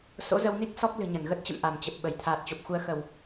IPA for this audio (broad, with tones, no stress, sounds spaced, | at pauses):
s o̰˧˥ z ə˧ w n i˦˥ k̚ s ɔ˦˥ k̚ l ɨ̤˨˩ ɲ ə˧˩ n ɣ ə˦˥ t̚ t͡ɕ ə̰˧˨ m ʔ a˧˩ m t͡ɕ ə˨˩ p̚ ɓ ə˧˩ j t̪ʰ aː˨˩ t̚ t͡ɕ o˨˩ p̚ x u˧ ə̯ x ə˧˩˨ w